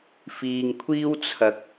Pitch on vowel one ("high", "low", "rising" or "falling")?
low